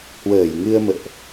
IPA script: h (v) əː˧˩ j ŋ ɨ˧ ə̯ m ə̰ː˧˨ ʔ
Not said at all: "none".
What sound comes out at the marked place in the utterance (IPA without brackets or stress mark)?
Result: w